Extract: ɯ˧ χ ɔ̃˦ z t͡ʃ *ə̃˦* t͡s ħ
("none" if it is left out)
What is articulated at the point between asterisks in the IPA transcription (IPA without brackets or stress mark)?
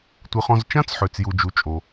ã˦